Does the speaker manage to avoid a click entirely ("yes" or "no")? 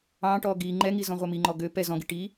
no